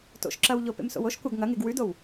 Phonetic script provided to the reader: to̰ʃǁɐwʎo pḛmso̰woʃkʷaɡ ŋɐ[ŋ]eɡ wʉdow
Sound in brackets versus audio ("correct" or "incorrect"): correct